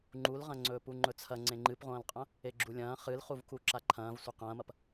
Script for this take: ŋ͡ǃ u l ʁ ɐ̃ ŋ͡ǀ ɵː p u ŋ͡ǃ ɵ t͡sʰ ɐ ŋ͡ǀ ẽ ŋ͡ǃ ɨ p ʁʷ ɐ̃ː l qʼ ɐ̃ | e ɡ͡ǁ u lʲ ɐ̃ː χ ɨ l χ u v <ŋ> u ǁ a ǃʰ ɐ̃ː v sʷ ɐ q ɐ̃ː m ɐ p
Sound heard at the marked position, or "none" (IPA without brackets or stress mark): k